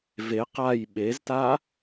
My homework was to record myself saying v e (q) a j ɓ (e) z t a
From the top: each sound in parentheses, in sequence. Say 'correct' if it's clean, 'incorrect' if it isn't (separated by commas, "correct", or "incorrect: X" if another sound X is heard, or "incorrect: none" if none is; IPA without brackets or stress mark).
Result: correct, correct